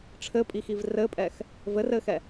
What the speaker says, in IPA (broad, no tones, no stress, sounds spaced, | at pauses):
ʈ͡ʂʰ ɘ pʼ i x i v r ɘ pʼ ɛ x | v ɘ r ɘ x ɛ